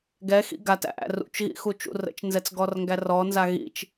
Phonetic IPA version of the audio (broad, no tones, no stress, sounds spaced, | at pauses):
ɡ ɛ x ḭ ɡ a t æ̰ ʔ æ̰ r ṵ t͡ʃ ɣ ḭ x u t͡ʃ ṵ r ə̰ t͡ʃ n z ɛ t͡s ɡ ɔ r ŋ ɡ æ r ɔ n z a ɣ ḭ t͡ʃ